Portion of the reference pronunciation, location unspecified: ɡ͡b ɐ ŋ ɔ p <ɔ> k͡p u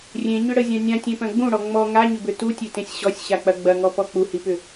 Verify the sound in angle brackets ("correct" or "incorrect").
correct